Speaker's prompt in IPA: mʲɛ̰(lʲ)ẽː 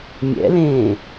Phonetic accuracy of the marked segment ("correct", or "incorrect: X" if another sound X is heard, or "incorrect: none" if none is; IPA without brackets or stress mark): incorrect: l